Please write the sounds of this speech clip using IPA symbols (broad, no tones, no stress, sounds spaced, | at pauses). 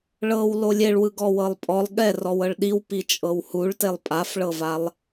ɭ ɤ w l o lʲ e ɭ w ɯ ɡ ɔ w ɤ lˠ pʼ ɔ lˠ ɠ ɛ r ɔ w ɤ ɭ ɗ i w p i t͡ʃʼ ɤ w h u ɭ t e lˠ pʼ a f ɭ ɤ v a lˠ